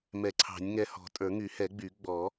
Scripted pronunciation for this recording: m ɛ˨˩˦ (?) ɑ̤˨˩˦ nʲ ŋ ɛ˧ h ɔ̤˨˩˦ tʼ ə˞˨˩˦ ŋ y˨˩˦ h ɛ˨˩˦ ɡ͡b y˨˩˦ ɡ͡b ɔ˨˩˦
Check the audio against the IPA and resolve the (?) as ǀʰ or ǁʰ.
ǀʰ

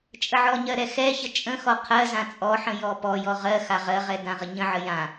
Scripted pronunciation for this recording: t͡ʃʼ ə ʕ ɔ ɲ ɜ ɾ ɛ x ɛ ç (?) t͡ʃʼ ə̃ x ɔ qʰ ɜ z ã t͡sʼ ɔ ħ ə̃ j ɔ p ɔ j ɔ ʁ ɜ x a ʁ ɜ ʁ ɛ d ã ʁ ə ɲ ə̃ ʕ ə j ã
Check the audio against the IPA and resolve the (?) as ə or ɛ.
ə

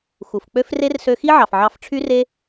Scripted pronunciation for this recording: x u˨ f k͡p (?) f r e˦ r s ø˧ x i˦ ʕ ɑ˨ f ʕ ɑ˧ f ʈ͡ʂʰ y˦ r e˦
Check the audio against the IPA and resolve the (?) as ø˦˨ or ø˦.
ø˦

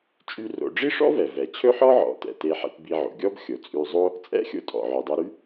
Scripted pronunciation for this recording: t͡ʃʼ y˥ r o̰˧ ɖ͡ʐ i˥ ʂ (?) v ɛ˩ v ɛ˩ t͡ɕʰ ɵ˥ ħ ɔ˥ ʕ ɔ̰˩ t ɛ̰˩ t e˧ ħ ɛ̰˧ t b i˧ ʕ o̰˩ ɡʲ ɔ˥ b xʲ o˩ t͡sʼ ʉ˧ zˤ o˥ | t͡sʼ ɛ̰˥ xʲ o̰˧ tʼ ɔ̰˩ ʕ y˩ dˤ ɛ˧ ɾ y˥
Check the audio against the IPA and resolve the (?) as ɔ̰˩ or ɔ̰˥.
ɔ̰˥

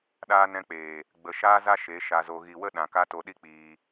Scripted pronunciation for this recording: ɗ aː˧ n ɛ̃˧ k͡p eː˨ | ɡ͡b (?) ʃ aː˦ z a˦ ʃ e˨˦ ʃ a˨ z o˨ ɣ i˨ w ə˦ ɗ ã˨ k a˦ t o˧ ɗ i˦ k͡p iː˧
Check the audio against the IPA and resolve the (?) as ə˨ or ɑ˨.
ə˨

